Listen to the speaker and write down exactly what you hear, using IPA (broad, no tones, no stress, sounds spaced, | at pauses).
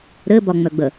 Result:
ɾ ɘ b ɒ ŋ͡m œ ɡ͡b ə